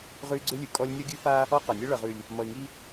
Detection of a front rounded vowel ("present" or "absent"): present